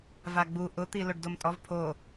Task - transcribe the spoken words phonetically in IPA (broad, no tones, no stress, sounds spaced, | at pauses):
v a ɡ͡b u ʔ ʊ t̪ i l o ɖ d o m tʼ ɔ v pʰ o